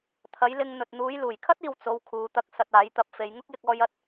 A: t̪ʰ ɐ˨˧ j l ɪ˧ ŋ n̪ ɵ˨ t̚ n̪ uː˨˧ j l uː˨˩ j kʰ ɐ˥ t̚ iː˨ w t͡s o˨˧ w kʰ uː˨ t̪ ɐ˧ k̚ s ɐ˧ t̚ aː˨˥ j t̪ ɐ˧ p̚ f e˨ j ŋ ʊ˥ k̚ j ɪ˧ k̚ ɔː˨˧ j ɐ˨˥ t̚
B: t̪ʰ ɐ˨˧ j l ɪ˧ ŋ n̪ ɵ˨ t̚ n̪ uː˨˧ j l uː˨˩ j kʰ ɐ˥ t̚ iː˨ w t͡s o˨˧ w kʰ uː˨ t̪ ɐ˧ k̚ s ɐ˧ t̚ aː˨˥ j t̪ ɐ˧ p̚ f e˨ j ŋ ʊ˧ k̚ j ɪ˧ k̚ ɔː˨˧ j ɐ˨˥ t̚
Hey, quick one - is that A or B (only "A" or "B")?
A